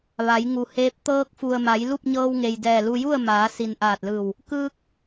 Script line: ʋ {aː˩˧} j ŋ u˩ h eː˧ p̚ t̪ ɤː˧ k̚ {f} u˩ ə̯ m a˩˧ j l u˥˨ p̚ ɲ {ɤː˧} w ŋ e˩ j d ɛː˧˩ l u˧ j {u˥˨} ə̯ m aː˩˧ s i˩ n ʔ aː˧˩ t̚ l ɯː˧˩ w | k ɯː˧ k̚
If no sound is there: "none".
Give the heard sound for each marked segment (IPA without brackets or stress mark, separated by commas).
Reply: a˩˧, f, ɤː˧, u˥˨